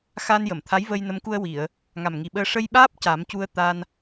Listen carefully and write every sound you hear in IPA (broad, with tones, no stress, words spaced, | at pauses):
xa˧njə˨˩˨mt̪ʰa˧˥j və˧jnə˧˥mku˧ə̯ wi˨˩˨ə̯ | ŋa˨˩mŋi˨˩ɓəː˧ ʂə˧jɓaː˦˥p̚ ca˨˩˦m cu˧ə̯t̪a˧n